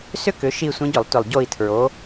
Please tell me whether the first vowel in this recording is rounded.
yes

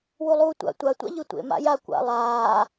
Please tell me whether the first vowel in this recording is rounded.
yes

